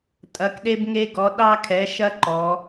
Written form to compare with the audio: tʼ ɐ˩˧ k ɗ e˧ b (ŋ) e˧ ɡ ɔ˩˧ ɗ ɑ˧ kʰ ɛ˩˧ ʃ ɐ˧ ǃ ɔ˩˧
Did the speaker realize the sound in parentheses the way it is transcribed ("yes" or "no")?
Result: yes